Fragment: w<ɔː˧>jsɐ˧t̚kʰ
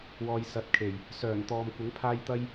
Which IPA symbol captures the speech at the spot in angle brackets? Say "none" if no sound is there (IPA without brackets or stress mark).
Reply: ɔː˧